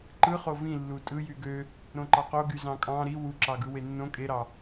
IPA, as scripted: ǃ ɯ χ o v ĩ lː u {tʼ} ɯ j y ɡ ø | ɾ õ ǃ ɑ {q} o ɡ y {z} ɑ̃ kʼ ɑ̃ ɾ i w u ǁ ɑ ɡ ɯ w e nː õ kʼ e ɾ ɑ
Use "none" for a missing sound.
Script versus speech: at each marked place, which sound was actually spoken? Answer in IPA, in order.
tʼ, q, z

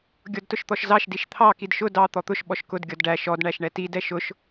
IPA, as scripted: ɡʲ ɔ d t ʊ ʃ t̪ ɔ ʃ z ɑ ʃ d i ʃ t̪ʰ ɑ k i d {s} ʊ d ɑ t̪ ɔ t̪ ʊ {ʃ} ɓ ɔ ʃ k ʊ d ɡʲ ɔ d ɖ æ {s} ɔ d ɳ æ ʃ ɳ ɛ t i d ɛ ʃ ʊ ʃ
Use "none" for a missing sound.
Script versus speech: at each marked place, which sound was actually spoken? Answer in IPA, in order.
ʃ, ʃ, ʃ

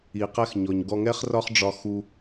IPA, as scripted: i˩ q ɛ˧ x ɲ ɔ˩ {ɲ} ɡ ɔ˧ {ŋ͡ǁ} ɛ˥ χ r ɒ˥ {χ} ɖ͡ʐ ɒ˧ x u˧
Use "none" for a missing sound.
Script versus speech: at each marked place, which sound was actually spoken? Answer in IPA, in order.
ɲ, ŋ, χ

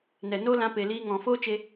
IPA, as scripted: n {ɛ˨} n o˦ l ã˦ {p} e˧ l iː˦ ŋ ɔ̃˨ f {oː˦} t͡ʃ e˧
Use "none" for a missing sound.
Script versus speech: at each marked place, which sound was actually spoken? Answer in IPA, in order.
ɛ˨, p, oː˦

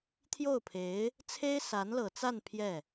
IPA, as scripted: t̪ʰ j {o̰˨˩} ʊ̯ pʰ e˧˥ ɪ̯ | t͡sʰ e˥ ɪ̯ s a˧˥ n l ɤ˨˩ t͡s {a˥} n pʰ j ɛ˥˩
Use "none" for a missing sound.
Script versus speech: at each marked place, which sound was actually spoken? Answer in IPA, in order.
o˥˩, a˥˧

